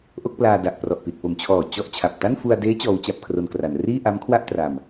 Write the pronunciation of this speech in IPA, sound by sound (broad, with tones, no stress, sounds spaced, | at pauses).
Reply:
ʔ o˥˩ k̚ p l aː˧ d a˨˩ ʔ p r ɔ˨˩ ʔ p i˨˩ t̚ p o˨˩ m t͡ɕʰ ɔː˨˩ t͡ɕ ɔ˥˩ ʔ t͡ɕʰ a˨˩ p̚ t a˥˩ n f u˧ a̯ d eː˦˥ t͡ɕ ɔː˦˥ w t͡ɕ a˥˩ p̚ kʰ r o˧ n k r a˩˦ n r iː˥˩ ʔ a˦˥ m kʰ w a˥˩ ʔ t r a˧ m